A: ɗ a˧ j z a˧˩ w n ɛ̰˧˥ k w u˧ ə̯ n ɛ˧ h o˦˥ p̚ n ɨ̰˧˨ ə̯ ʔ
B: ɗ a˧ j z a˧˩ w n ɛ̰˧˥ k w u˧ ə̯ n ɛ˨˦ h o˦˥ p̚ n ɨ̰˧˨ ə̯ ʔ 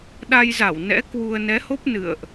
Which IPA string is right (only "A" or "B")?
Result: B